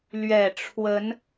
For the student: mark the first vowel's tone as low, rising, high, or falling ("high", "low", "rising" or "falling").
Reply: low